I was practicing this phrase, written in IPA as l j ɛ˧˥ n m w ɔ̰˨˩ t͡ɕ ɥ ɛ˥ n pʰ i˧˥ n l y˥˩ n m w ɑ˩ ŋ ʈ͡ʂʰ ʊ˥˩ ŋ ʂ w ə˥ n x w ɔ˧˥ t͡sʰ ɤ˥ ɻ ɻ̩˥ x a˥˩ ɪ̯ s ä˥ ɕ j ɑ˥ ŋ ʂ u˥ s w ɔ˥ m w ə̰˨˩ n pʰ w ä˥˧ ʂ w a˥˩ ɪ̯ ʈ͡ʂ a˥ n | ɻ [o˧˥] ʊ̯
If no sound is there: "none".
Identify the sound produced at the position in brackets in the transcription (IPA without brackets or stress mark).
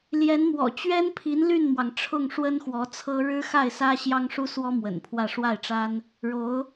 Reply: o˧˥